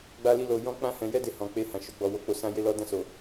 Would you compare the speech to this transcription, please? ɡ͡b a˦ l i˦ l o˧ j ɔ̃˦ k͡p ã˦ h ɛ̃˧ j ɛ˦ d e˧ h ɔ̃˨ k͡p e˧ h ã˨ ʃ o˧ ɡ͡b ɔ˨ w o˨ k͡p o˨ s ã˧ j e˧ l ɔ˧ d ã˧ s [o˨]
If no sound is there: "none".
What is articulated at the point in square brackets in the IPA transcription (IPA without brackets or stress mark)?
o˨